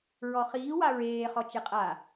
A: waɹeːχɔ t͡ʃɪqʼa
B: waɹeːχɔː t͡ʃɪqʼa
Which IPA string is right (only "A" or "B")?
A